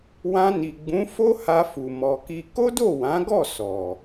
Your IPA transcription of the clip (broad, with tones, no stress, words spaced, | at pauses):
wã˧ni˨ɡ͡bũ˨˦ fo˦ha˧fu˨ mɔ˧ki˦ ko˦do˦˨wã˨˦ɡɔ˦˨ sɔ˨